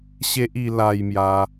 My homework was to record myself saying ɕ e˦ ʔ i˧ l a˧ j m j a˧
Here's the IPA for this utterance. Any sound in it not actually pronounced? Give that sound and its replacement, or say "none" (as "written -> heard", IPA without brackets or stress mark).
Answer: none